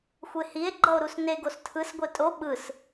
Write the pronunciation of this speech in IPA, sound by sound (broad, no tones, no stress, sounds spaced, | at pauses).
xʷ e h i e̯ ɡ͡ǃ ʌ o̯ ɾ u s n e ɡ o s tʰ ɯ s ɡʷ e tʼ o ɓ ɯ s